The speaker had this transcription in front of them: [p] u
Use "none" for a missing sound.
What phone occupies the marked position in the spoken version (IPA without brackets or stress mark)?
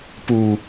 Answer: p